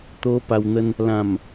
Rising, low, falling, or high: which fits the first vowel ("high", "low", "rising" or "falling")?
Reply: high